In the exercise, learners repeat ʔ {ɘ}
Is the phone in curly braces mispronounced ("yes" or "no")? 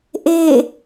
yes